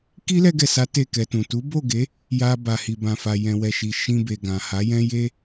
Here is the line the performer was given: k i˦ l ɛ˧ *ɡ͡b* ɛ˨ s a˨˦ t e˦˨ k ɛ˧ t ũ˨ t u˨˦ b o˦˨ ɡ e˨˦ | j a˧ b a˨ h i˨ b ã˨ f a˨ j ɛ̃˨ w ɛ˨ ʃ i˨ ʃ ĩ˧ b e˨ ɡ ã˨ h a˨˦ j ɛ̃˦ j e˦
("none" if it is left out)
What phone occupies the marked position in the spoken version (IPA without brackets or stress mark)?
ɡ